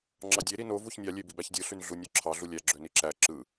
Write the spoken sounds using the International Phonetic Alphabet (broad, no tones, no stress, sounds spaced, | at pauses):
ŋ͡ǁ ɑ dʲ e ɾ i n o v u ç nʲ ɑ lʲ e b i b æ ç dʲ ɯ ɬ y n ɮ u nʲ ø ǁʰ ɑ ɮ u lʲ æ ɡ͡ǁ ø n i ǁ æ ǁ ɯ